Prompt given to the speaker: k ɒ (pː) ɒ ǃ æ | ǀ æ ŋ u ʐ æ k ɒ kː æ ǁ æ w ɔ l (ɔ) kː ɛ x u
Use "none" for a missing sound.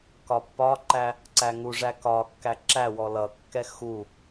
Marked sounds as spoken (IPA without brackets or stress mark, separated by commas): pː, ʌ